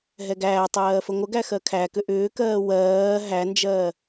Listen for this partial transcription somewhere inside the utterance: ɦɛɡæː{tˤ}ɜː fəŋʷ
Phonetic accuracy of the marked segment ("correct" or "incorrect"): correct